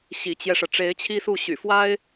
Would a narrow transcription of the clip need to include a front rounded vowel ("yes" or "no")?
yes